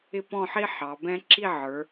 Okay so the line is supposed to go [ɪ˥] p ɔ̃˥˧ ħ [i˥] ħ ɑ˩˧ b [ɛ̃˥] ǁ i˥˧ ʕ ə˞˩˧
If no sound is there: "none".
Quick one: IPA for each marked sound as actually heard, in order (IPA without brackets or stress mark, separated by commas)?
ɪ˥, i˥, ɛ̃˥